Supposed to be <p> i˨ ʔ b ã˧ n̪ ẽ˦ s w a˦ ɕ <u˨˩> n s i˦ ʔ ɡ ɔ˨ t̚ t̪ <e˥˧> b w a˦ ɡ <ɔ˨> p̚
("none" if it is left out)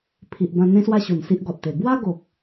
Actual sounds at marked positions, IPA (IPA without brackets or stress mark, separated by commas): pʰ, u˨˩, e˨˩, o˨